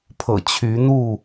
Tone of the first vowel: low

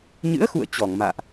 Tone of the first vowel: rising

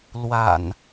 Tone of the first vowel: low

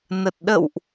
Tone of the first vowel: low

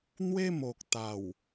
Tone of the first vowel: high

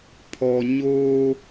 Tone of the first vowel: low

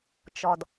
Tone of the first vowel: low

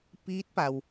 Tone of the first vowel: rising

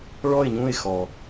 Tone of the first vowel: falling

